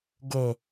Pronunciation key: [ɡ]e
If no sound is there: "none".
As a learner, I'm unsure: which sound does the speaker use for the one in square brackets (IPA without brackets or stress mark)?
ɡ